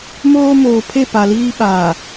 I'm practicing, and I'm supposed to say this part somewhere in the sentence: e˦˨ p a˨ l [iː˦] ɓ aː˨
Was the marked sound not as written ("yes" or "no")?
no